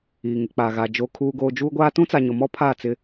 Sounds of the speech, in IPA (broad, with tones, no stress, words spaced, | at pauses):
iː˨ŋɪ˨k͡paː˨ɣa˨ d͡ʒoː˨kʰuː˨ɡoː˨ d͡ʒuː˦ɡʷaː˦ tũ˦t͡sa˨ɲʊ˨mɔ˦ pʰa˦˨t͡sɪ˦